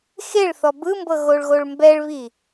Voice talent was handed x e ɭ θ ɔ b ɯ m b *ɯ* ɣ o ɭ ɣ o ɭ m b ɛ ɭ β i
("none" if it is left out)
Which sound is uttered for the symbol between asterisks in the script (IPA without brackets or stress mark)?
ɤ